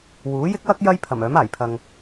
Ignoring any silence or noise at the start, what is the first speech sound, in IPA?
w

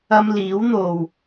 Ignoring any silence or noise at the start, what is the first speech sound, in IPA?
ɐ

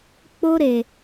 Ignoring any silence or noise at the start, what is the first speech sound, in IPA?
k͡p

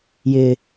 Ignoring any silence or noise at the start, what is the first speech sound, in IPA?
j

